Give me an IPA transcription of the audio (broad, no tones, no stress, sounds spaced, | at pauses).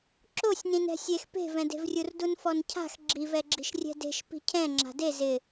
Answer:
ǁ o sʲ n ĩ n ɛ̤ sʲ e x p e̤ v ɛ̃ d e̤ v rʲ u r d u n f ɔ n cʰ a̤ x ɡ͡ǁ i v ɛ ɡ͡ǁ i̤ ʃ rʲ ɛ̤ d e̤ ʃ p i̤ cʰ ɛ̃ ŋ͡ǁ a̤ d e z ɪ